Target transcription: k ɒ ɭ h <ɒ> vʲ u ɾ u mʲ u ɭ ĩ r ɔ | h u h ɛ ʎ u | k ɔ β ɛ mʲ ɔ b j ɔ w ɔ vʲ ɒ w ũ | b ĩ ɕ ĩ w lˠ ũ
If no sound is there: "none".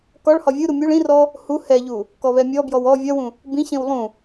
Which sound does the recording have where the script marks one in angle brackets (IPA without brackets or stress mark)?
ɒ